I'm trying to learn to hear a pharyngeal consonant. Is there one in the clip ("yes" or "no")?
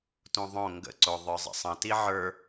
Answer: yes